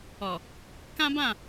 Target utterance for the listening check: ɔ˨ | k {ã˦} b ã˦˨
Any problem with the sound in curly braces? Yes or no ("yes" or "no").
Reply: no